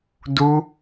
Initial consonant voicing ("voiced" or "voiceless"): voiced